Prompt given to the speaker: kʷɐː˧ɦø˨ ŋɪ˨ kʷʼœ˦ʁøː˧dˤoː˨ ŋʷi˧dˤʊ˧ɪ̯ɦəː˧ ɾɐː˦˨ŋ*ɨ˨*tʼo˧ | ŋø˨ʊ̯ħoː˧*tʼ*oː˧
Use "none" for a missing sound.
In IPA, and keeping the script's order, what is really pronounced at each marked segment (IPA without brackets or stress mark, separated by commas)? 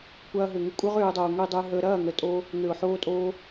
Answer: ə˨, tʼ